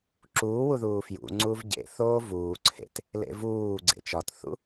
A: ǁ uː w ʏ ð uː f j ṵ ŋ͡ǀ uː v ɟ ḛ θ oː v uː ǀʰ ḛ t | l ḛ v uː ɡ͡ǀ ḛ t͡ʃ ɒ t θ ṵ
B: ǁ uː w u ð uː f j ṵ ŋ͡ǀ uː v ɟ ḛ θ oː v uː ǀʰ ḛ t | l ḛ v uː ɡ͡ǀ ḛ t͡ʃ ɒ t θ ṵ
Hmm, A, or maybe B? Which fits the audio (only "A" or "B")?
B